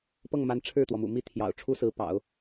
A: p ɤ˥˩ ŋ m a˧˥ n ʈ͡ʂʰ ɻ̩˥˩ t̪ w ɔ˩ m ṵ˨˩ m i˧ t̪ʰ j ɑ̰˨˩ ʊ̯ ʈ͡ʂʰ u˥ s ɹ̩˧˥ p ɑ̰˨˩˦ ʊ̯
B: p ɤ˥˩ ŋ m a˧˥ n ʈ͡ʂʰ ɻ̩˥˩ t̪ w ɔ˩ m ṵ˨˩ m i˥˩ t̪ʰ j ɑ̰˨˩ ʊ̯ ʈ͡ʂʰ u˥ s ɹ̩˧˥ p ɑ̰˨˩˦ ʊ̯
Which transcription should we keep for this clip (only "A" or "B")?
B